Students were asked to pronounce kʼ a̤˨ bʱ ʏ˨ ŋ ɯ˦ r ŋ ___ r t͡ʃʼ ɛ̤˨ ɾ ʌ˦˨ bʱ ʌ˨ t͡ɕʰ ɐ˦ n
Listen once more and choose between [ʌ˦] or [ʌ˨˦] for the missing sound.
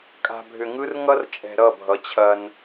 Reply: ʌ˦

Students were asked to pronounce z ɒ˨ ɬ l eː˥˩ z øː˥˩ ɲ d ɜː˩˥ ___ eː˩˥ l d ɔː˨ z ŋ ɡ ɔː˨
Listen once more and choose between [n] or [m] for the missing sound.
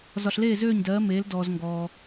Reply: m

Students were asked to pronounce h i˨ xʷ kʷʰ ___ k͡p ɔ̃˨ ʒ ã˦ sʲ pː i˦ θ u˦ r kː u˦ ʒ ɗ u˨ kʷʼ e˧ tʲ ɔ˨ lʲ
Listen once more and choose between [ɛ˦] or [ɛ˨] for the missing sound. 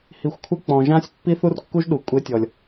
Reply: ɛ˦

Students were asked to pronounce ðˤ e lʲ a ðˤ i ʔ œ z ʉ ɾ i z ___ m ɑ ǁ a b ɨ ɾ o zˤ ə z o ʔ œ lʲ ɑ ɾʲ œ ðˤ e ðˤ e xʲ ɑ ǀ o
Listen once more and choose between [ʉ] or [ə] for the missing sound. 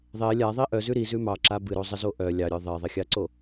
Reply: ʉ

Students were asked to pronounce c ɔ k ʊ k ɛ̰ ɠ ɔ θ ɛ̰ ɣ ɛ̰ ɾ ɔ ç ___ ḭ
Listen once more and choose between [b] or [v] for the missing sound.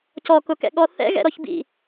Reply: b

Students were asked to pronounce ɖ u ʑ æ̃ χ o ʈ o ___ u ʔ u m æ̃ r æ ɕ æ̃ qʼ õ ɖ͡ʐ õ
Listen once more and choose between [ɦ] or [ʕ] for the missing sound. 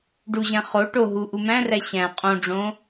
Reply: ɦ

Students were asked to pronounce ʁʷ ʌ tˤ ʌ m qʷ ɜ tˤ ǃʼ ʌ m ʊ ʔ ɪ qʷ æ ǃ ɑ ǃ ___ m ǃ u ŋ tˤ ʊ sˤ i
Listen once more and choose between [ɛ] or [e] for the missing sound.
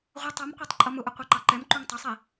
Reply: ɛ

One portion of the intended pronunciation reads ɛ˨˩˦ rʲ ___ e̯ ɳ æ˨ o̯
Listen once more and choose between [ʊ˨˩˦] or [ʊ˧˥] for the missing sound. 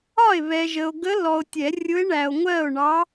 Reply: ʊ˧˥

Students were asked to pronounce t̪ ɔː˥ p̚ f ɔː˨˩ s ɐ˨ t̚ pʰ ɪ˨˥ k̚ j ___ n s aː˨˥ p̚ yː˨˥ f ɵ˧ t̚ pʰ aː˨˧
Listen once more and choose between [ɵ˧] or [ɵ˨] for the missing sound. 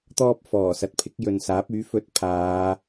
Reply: ɵ˨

